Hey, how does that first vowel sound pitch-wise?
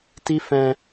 high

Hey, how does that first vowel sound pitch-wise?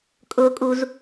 high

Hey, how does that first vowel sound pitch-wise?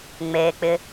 low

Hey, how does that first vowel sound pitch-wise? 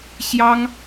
high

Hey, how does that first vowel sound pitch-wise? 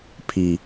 low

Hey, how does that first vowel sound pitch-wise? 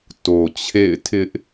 low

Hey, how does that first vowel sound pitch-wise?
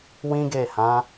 high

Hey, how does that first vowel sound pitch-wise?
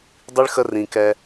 high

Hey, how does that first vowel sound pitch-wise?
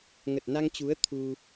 low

